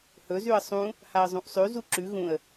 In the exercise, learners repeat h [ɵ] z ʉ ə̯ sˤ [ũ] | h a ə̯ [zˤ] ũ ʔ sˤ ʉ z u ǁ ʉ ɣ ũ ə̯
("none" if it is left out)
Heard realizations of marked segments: ɵ, ũ, zˤ

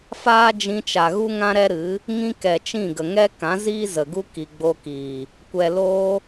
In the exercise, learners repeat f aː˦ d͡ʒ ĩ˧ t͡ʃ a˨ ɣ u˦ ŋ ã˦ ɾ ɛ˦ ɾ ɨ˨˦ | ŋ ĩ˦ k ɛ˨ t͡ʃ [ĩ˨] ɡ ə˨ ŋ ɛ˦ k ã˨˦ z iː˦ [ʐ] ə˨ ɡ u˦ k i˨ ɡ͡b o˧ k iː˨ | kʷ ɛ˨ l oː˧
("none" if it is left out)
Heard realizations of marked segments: ĩ˦˨, z

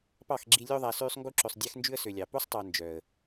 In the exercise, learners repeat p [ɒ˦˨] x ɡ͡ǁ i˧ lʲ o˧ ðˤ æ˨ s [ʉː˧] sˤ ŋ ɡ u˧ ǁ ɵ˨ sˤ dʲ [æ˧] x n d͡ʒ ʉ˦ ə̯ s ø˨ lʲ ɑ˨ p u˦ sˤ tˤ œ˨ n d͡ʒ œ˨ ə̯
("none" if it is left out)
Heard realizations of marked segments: ɑ˦˨, ʉː˧, æ˦

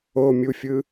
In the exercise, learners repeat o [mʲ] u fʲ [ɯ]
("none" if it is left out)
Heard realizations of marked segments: mʲ, ɯ

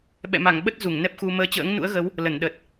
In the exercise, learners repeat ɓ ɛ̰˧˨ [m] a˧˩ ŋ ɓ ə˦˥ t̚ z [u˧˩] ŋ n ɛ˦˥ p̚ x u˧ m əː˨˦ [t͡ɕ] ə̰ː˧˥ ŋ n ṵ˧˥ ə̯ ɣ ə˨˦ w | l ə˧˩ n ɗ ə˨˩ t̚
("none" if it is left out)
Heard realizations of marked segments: m, u˧˩, t͡ɕ

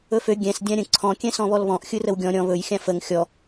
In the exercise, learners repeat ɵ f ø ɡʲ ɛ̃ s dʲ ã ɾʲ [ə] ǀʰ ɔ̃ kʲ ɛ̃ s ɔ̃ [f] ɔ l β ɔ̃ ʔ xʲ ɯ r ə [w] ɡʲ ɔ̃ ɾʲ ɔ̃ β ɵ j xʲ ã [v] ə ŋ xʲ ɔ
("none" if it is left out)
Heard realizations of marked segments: ə̃, β, w, f

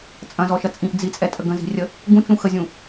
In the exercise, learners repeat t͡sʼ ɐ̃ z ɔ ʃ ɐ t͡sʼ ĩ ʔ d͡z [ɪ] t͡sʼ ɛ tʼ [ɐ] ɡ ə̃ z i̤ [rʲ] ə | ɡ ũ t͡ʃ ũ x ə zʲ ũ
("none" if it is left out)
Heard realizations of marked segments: i, ə, rʲ

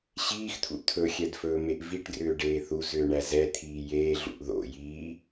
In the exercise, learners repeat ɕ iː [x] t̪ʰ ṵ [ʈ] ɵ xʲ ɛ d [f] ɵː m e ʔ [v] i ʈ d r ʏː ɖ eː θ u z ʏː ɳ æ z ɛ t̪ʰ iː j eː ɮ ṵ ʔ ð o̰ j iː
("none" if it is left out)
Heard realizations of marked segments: x, t̪ʰ, f, v

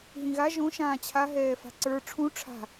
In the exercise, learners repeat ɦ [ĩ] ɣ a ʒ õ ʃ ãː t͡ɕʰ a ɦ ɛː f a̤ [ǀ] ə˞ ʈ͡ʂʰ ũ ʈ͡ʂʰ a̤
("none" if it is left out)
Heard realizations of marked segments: ĩ, ǀ

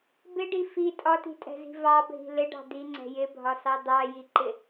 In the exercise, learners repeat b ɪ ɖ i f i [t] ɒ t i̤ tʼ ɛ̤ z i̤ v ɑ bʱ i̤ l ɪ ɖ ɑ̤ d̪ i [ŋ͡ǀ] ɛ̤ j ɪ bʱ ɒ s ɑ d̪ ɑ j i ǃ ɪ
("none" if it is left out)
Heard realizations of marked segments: tʼ, ŋ͡ǀ

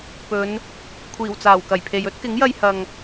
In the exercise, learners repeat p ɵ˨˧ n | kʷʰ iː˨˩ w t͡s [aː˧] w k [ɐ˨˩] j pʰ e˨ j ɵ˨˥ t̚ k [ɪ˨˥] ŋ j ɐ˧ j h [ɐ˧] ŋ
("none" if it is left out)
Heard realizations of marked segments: aː˨˩, ɐ˨˩, ɪ˨˥, ɐ˨

